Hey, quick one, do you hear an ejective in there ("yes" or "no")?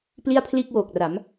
no